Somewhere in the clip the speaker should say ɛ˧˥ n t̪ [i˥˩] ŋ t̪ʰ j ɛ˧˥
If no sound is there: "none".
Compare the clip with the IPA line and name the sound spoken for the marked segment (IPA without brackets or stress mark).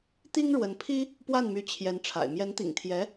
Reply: ḭ˨˩